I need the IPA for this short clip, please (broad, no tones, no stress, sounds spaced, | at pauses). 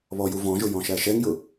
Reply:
β ɔ j u v ɔ̃ ʒ ʊ j ɔ̃ ʃ æ ʃ ɛ ŋ j ʊ